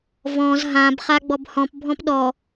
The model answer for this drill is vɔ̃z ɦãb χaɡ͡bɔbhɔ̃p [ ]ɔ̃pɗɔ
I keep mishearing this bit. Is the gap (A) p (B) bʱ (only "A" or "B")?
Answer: B